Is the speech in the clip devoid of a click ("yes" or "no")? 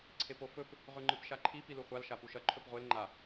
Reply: no